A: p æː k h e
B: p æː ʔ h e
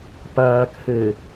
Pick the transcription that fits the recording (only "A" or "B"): A